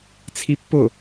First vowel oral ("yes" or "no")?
yes